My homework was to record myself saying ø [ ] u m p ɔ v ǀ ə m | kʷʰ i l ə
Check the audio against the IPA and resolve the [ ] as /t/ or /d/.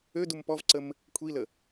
d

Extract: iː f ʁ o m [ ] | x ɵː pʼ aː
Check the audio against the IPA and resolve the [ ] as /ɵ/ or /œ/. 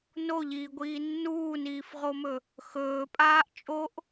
ɵ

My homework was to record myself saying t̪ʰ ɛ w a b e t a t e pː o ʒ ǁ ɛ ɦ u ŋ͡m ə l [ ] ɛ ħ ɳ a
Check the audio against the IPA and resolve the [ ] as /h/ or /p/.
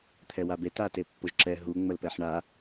p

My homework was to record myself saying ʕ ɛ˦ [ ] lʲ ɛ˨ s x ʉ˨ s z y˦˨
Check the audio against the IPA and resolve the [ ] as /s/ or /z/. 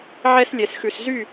s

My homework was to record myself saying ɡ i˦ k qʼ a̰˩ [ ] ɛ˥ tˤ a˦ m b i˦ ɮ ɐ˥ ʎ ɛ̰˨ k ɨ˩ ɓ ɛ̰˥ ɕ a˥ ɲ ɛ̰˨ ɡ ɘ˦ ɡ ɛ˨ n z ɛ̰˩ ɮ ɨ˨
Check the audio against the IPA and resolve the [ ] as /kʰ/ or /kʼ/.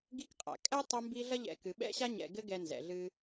kʼ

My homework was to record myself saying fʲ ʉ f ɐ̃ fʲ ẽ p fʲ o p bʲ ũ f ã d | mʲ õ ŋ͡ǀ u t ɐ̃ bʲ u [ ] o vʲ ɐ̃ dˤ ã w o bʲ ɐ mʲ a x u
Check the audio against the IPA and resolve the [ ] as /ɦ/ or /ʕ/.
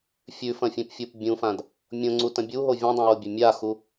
ɦ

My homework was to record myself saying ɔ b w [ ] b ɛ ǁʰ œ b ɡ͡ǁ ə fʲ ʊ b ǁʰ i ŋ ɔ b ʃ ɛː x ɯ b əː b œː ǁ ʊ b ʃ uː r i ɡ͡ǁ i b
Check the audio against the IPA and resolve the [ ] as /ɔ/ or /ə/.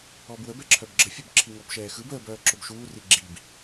ə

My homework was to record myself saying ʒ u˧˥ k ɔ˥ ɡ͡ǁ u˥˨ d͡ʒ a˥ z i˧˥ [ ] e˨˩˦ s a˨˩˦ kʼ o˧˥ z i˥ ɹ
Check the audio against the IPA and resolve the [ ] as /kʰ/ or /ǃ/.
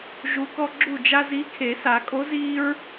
kʰ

